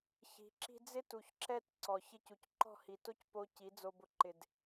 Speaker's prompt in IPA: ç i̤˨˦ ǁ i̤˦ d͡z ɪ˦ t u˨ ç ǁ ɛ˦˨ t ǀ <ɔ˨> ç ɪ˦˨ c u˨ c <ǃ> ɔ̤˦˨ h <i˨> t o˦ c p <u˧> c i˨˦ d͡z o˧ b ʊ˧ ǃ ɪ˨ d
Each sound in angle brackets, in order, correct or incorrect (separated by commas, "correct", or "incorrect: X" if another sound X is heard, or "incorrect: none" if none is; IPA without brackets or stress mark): correct, correct, correct, incorrect: o˧